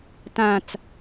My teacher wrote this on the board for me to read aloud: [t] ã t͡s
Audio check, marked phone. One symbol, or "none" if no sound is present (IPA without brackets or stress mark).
t